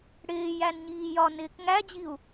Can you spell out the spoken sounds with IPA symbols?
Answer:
ɽɪːjænɲiː jɒnɪːk ŋæd͡ʑiu̯

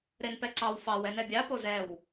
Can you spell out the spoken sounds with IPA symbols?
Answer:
ɾenpɛǀɑw fɑw ɛnɛbʲɑ pozɛw

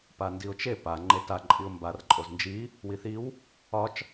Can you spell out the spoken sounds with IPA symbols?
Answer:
pandiʊ̯t͡ʃe pa ŋ͡ǃeta ǃʼiʊ̯mbar ǃʼoznd͡ʒi | wiθiw | ɒt͡ʃ

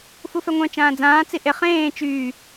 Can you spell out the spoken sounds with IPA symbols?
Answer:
fufɛŋʷœ̃ t͡ʃãːd͡zãː t͡siʔe χẽː t͡ʃyː

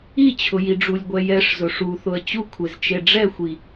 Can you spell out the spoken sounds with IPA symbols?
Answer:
it͡ɕʰʊjiɖ͡ʐulʲ ɡʷɛjɛʂzʊ ʂuθʊə̯ t͡ɕu kʷʰezt͡ʃeɖ͡ʐɛxʷi

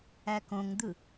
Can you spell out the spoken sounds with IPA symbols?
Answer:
ækõŋd̪ɯ

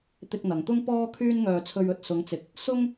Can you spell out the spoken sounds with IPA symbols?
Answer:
t̪ɪ˧k̚n̪ɐ˨ŋt̪ʊ˥ŋ pɔː˥kʰyː˥nŋœː˧ t͡sʰɵ˧ɥɵ˨t̚ sʊ˨˥ŋt͡sɪ˨˥k̚ | sʊ˥ŋ

